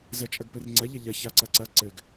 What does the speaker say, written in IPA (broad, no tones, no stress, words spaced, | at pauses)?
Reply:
zɜt͡ʃʼɐɡpɘrŋ͡ǀɐ ʎɐʎɐ çaǀɐǀɐ ǀɘɡ